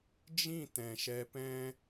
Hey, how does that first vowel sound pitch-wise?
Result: falling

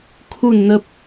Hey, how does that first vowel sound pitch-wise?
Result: falling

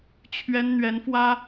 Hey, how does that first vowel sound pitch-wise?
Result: high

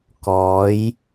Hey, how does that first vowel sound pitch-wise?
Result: rising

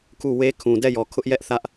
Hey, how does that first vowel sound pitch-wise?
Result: falling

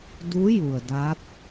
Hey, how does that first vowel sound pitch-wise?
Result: rising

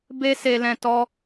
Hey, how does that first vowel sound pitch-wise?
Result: high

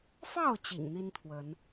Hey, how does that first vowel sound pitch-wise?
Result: falling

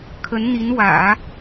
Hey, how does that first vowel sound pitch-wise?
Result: rising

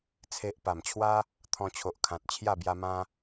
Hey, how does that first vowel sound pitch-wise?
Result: low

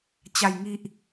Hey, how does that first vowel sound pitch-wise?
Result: low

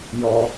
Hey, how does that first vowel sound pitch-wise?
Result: high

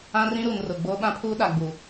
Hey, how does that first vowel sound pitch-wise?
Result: high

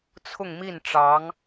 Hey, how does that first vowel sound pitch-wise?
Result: falling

